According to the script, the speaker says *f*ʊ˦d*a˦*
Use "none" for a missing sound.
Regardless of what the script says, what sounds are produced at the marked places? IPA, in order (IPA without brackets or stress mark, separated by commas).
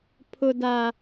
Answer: pʰ, a˦